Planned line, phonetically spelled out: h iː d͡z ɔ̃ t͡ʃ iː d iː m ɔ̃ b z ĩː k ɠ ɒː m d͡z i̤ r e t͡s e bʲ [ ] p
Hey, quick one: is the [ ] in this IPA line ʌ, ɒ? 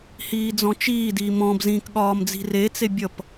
ʌ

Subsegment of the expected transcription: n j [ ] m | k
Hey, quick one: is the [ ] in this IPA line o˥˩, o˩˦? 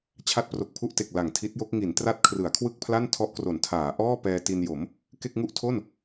o˩˦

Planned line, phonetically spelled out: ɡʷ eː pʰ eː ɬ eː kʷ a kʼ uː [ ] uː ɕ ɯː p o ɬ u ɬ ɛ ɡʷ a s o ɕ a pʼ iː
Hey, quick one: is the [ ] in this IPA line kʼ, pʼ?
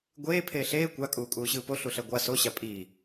kʼ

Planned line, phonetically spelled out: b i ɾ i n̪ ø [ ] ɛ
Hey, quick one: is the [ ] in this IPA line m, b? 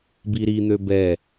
b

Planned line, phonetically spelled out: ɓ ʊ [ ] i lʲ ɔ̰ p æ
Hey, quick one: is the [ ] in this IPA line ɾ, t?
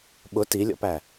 t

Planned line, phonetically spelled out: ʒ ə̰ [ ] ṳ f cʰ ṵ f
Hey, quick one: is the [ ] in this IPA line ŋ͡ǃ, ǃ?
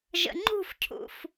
ŋ͡ǃ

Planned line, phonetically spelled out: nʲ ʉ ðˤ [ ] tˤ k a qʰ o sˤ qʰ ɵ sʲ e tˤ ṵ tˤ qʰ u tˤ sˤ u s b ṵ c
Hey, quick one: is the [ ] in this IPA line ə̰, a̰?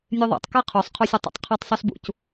a̰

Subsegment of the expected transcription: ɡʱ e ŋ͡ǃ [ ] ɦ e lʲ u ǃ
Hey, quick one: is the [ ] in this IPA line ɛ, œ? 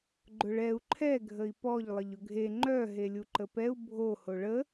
œ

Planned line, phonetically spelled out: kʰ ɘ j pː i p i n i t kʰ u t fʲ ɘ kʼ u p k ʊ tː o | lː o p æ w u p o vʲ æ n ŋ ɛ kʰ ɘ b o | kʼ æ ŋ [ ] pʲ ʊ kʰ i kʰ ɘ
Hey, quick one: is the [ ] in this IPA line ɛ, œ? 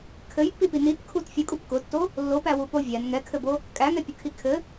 ɛ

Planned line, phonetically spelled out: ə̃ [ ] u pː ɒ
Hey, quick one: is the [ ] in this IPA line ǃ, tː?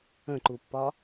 ǃ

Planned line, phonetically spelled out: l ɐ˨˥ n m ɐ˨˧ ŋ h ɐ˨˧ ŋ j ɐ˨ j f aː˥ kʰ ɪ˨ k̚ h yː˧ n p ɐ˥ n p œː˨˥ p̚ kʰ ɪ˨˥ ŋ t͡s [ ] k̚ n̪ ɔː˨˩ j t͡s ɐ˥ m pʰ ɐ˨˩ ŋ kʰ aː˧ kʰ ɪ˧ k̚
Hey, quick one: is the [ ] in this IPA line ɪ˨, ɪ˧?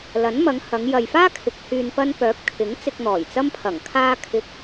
ɪ˧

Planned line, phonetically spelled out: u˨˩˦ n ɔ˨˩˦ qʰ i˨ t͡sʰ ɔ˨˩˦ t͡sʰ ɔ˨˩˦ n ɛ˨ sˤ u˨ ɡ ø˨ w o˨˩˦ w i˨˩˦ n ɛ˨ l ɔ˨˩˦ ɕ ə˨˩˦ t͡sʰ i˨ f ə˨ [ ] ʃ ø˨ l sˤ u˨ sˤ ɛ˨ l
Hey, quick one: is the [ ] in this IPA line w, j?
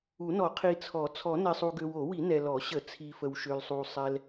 w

